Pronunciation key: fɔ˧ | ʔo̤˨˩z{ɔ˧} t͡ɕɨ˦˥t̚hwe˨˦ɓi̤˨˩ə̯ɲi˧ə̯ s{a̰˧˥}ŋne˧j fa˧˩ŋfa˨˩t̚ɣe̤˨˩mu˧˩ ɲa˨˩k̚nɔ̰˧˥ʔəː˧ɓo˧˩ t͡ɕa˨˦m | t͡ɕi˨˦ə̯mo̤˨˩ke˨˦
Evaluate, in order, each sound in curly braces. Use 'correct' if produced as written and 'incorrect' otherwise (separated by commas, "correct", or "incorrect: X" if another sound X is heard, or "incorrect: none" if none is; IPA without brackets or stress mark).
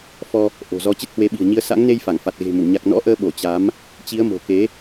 correct, correct